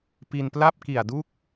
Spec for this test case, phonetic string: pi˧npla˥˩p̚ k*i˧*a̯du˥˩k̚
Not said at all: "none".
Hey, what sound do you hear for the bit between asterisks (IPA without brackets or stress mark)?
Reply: i˨˩